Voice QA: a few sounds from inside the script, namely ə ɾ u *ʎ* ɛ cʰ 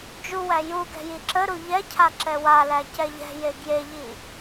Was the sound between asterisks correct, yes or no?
yes